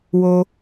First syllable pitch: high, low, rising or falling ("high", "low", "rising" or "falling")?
high